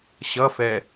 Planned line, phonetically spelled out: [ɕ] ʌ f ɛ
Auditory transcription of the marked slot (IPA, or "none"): ɕ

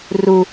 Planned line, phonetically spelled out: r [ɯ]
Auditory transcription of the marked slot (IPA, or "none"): u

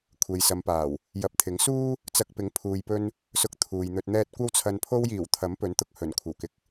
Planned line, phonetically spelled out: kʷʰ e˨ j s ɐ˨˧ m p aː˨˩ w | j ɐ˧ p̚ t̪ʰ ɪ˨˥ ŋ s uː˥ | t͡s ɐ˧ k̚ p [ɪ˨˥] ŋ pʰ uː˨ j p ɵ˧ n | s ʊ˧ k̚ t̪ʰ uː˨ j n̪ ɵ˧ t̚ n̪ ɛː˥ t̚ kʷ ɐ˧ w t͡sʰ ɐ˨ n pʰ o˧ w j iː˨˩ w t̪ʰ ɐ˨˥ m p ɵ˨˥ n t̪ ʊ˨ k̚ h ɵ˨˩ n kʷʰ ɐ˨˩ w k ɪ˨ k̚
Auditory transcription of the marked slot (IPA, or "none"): ɪ˨˥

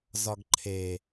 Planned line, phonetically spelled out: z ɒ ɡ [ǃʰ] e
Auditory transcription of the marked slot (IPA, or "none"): ǃʰ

